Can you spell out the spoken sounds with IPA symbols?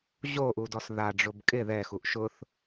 ʑ o ʔ u d ɔ s ð a ɖ͡ʐ ʊ b kʼ ɪ ð ɛ x u ʔ ʃ ʊ θ

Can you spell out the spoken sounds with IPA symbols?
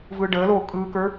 v ɯː ɖ əː l oː kʼ ɯː k ə˞

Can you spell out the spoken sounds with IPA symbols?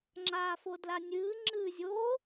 ŋ͡ǁ aː f o d l a nʲ ɨː ŋ͡ǁ ɨː zʲ o

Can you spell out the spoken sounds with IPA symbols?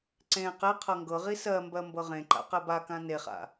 ǀ ẽ q e qʰ ɤ ŋ ɡ ɤ ʁ i s ɜ m b ɜ m b ɤ ʁ ẽ ǃ a̰ q ɛ b a k ã n e χ a̰

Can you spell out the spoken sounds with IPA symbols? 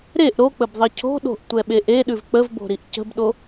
ɾ e ʔ ɾ o k͡p ə b ðˤ i cʰ o̤ ɗ o̤ ʔ tʷ ɛ ɓ e ʔ e ɗ ʉ v k͡p ə v b o̤ ɾ i ʔ c ə̤ b ɗ o

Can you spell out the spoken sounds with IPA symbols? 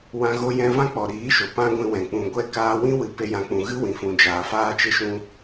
w ã˧ ɣ o˧ j ɛ̃˧ v ã˦ k͡p ɔ˨ ɾ iː˨˦ ʃ o˨ p ã˦ ɡʷ ĩ˧ w ɛ̃˨ k͡p ũ˨ ɡʷ ɛ˧ k aː˧ w ĩ˦ w ɨ˨˦ p e˧ j ã˨ k͡p ũ˨ ɣ ɨ˦ w ĩ˨ f ũ˨ d͡ʒ aː˨ f aː˦ t͡ʃ e˦ ʃ ũ˦

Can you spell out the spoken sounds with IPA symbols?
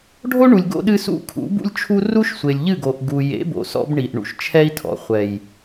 ɖʱ o˦ ɳ u˨ lʲ ɡ o̰˦ ɗ ɨ˦ s ṵ˦˨ kʰ ṵ˨˦ b ṵ˦ lʲ t͡ʃʰ u˦ r u˦ ʃ sʷ e˨ lʲ ʎ ɨ˦˨ ɡ o˨ ʔ ɡ u˨ j ḛ˨˦ b o̰˨ s ɔ̰˦ b ɳ i˨ ʔ ɳ ṵ˨ ʃ t͡ʃʰ ɛ˦ i̯ tʰ ɔ̰˨ χʷ ɛ˨ j

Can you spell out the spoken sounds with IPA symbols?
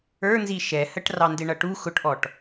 ə˞ n z i ʃ ɛ h ə ʈ r ɑ n d ɪ ɳ ʌ ʈ u x ʊ ʈ ʔ ɔ ʈ

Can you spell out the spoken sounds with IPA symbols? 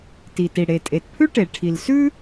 t i˩ t i˩ ɽ e˩ tʼ e˩ t pʰ ʉ˥ ʈ e˩ ʈʰ i˩ l s ʉ˥

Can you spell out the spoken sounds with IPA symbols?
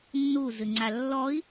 nː u z ɨ ŋ͡ǀ a lː ɔ i̯

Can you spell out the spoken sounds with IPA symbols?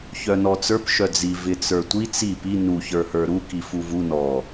ç œ n ɔ t͡s ə˞ p ʃ œ d͡z i v ɪ t͡s ə˞ tʷ i t͡s i p i n u ç ə˞ h ə˞ ɾ u k i f u v u n ɔ

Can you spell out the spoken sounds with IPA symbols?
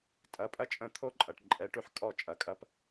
tʼ ɐ˩˥ pʼ ɐ˥ t͡ʃʼ ə̃˥˩ t̪ʰ o˥ ǃʼ ɐ˩ ʈ ǃʼ ɛ˩˥ ʈ ʉ˧ ħ kʼ ɔ˥˩ t͡ʃʼ ɐ˩˥ kʼ ɐ˥ p

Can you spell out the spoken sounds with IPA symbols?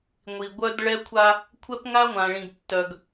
ŋʷ i˨ ɡʷ œ˦ d ɭ ɛ˦ kʷʰ a˦ | kʷʰ ɛ˦ p ŋ a˦ ŋʷ ã˨ ɭ ĩ˨ ɡ tː œ˨ ɡ

